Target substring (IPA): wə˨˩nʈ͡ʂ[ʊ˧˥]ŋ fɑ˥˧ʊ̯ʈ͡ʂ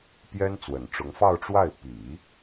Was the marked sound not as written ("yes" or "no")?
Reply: no